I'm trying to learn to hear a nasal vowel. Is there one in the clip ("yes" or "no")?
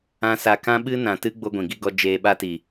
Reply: yes